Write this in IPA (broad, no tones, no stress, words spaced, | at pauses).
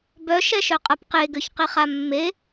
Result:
bœ ʃɛʃœqʼapqe ɡøçqiχamːe